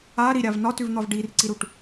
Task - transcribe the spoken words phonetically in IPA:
a ɾiɾʲav nɒtʉvn̪ɒv ɖirǀiɾuʈ

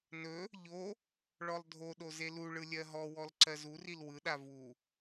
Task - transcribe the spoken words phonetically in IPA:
nɵ | ʎo | ɭɔlˠdʱoɗo zeluɭɯ lʲɜɦɔwɔl ǀɜzuril wɯɗa vu

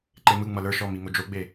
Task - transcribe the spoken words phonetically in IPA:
ǃemɯ ŋ͡mʌlə˞ ʃɔ miŋod͡ʒoɡ͡be

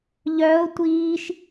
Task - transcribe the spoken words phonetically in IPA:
ʎœo̯ tʷiːʃ

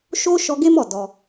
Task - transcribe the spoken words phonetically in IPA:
ʃo˦ ʃɔ˧ ɡe˦mɔ˦˨ dɔ˧

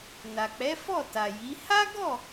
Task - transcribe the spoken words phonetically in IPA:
na˨k͡pɛ˨˦ fɔ˦˨ta˨ji˨˦ ha˦ɡɔ˦˨

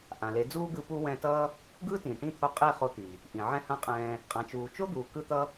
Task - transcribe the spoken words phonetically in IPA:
ʔã˨le˨˦d͡zuː˦ɡɯ˧ pu˦wɛ̃˧tʌː˦ | ɡɯː˦tĩː˨ʈĩ˦˨t̪ʰo˧ qʼe˦˨ χo˧t̪i˨ | ʔĩ˨ʕɛ̃˦hã˦qʼɛ̃ː˧ | qʼã˨t͡ʃuː˨t͡ʃo˦d̪uː˨ kɯ˦t̪ʌ˦

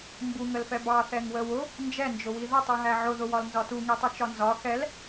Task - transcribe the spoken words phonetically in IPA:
mbuŋəlfɛ bɑ θɛŋwəwʊ | nd͡ʒɛnd͡ʒʊwi ðətˤuɦæ ʕʊðʊwɒl nzɒtuŋitˤu t͡ʃɒnzɒ xɛl

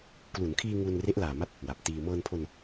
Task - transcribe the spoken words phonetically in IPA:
klu˩˦nkʰiː˧ ŋu˧nre˦˥ʔ laː˨˩ma˦˥t̚ | wa˨˩p̚tiː˧ mɤː˧npʰo˧n

